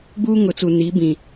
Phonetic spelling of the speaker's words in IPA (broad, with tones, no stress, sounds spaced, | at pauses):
ɡ͡b uː˦ ŋ ʊ˨˦ t͡s u˨ n i˨˦ b ĩ˨